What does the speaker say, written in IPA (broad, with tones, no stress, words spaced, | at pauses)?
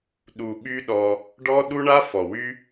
ɗu˧ɓy˦ɗɔ˧ | ɖɔ˦ɗu˦ɳa˦ fɔ˨wy˦